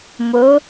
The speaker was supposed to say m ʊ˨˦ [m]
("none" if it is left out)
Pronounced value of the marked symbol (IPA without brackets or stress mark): none